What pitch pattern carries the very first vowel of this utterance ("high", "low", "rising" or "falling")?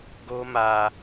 high